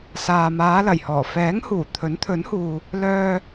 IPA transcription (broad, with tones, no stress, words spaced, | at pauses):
saː˨maː˨˧ lɐ˨˩jhɔː˨˩ fɛː˨˥ŋhuː˨˩ t̪ʰɵ˨˥nt̪ʰɵ˨˥nhuː˨ | lœː˧